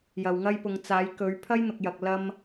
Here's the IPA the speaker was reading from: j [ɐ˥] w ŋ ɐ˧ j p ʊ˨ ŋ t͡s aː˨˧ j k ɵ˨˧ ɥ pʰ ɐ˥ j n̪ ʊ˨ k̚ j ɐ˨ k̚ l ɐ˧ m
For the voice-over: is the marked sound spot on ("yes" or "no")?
no